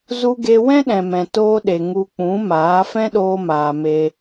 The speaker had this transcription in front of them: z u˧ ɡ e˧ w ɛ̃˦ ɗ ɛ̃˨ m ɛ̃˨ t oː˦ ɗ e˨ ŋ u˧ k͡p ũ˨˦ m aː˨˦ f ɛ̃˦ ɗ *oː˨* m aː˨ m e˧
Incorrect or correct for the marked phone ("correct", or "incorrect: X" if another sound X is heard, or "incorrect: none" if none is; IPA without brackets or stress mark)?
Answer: incorrect: oː˧